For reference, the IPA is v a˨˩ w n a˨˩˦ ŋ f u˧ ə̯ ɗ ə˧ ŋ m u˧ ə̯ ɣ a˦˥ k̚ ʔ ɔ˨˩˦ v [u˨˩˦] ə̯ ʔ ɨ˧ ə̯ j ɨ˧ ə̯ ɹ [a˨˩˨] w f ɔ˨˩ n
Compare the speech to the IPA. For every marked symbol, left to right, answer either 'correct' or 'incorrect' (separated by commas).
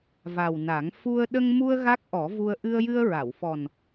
incorrect, correct